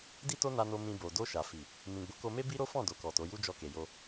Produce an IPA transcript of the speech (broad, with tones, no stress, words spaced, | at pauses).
di˦to˦na˧no˧ mĩ˧bo˨ do˧ʃa˨ fi˨ | mĩ˨ɡ͡bo˨˦ko˧me˦ bi˦ɾo˦ fɔ̃˦˨ do˨kɔ˨to˨˦ju˦ d͡ʒɔ˧ke˨ jo˧